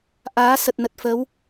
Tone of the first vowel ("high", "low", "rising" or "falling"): rising